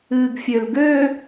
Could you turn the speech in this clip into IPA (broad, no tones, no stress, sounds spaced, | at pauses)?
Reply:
ɨː ɡ fʲ ø l ɡ ø